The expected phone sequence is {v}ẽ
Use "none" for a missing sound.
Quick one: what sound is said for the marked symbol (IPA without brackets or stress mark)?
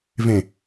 v